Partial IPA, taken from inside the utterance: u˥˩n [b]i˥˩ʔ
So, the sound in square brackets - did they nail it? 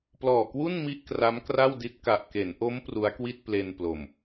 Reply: no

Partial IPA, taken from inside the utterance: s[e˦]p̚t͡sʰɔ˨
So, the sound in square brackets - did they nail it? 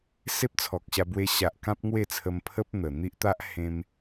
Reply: yes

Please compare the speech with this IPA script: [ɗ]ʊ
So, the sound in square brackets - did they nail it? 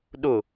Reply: yes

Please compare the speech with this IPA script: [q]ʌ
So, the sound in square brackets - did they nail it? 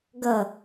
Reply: no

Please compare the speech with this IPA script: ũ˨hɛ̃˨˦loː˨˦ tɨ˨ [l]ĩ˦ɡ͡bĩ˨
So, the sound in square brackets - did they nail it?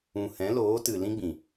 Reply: yes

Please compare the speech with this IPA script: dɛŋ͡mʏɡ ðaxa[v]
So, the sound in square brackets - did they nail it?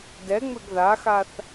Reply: no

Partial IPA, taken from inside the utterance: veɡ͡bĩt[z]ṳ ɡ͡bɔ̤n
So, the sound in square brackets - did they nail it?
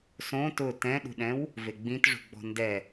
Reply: no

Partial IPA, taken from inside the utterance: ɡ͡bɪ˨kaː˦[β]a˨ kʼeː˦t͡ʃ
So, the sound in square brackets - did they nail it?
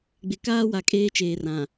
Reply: no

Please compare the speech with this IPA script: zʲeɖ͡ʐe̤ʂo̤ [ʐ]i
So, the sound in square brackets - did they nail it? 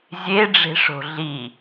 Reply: no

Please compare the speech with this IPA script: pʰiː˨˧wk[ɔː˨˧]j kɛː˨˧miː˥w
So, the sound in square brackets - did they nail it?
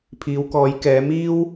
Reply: yes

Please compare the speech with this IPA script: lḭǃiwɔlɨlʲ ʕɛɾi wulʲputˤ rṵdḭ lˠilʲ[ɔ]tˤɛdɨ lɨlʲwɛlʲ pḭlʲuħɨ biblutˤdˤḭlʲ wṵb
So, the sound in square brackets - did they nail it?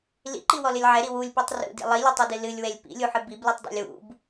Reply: yes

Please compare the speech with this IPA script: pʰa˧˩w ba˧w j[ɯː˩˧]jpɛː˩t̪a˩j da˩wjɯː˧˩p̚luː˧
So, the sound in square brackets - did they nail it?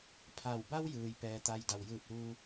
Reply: no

